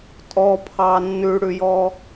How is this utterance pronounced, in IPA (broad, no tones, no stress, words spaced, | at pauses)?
tʼɔpʰɑ nːʉɽʉjɔ